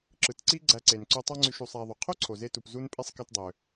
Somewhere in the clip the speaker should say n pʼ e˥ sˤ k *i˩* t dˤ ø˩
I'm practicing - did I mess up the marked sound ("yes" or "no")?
yes